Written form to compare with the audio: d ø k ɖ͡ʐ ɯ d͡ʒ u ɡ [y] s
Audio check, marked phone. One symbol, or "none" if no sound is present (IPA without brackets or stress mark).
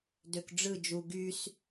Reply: y